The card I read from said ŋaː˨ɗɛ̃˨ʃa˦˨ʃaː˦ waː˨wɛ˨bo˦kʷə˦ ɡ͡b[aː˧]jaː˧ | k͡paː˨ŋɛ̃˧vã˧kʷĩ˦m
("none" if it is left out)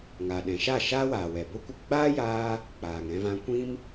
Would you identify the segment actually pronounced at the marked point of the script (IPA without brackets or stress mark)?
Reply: aː˦